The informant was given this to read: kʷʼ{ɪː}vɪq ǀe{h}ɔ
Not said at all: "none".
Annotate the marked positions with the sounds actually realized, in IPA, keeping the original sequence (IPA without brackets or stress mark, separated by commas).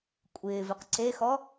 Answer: ɪː, x